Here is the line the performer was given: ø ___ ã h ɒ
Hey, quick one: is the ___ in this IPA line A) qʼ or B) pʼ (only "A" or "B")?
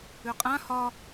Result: A